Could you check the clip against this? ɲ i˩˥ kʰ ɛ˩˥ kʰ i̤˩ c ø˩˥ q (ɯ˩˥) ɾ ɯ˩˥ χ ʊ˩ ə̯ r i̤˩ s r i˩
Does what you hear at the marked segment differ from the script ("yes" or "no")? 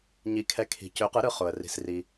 no